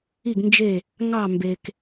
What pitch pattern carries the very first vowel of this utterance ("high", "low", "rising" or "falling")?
falling